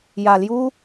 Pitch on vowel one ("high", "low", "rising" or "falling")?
low